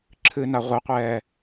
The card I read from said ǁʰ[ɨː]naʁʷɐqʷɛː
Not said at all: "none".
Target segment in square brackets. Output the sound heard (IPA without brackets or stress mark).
ɨː